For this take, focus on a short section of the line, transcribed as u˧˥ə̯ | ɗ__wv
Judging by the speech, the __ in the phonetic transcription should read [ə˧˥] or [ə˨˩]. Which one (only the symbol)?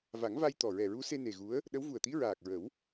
ə˧˥